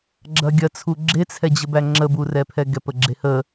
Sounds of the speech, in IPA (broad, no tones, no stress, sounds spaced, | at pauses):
ɡ͡ǁ ɐ ɡʲ ɐ t͡sʰ u ɡ͡ǁ e t͡sʰ ɛ d͡ʑ ə b æ ŋ͡ǁ ə b u r ɛ pʰ ɛ ɡ ɛ p ə ɡ͡ǁ e h ə